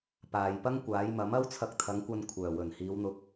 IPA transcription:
p aː˨ j p ɐ˥ ŋ kʷ aː˨˥ j m ɐ˨˥ m ɐ˥ w t͡sʰ ɐ˧ k̚ t̪ʰ ɐ˨˥ ŋ kʷ ɐ˧ n kʷʰ œː˨˩ w ɵ˨˩ n h iː˨˧ w n̪ ʊ˧ k̚

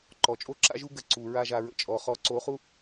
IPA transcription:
ǃ ɔ˨ t͡ʃʼ o˦ ǁ a̰˦ ʒ u˦ ɡ ə˧ ǀ u˨ ɹ a˦ ʒ a˧ ɹ ə̰˨ t͡ʃʼ ɔ˨ χ ɔ˨˦ ǀ o˨˦ χ u˦

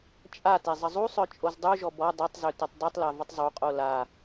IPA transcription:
t͡ʃʼ a t e zˤ ə zˤ u sˤ œ t͡ʃʼ o z dˤ u ʒ ɔ b ɔ dˤ œ tˤ z ø t ø tˤ dˤ u tˤ l a v ə tˤ zˤ u qʼ o l a

